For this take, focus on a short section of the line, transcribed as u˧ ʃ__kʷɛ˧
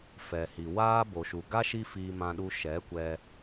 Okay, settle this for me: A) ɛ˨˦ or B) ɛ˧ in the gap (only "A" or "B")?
A